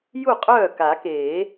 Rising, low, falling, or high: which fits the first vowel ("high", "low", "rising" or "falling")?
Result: falling